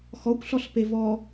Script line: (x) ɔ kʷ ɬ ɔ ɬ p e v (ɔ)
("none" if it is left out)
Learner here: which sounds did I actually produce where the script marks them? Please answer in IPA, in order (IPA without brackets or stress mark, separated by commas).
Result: x, ɔ